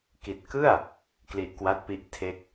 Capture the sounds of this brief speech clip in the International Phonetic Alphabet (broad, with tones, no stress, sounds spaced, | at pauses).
k i˨˩ t̚ k ɯ˥˩ a̯ | k l i˨˩ ʔ k w a˦˥ t̚ p i˦˥ ʔ tʰ e˦˥ k̚